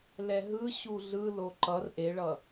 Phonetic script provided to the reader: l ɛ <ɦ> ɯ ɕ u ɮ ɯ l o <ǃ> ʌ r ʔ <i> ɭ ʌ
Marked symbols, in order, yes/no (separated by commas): yes, yes, no